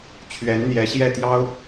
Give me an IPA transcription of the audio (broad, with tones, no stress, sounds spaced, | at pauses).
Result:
t͡ɕʰ ɥ ɛ˧˥ n n̪ j ɛ˧˥ ɕ j ɛ˥˩ t̪ j ɑ˥ ʊ̯